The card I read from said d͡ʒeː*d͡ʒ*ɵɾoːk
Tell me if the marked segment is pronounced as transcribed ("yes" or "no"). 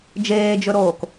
yes